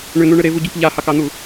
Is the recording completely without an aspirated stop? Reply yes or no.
yes